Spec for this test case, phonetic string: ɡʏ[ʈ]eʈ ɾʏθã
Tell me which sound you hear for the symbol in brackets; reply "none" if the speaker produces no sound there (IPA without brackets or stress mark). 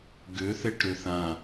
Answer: θ